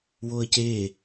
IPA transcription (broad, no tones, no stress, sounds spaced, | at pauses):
w o ə̯ c e